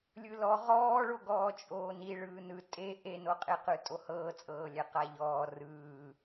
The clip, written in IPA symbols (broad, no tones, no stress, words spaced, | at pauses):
lʲɯlɔ ʁɔːɭoɡɔː t͡ʃʼoːni ɭɯːnɯ tʼe ʔenoqʼeqɯ tʼohɤːt͡sʼɤː lʲɛqaʎɔː rɯː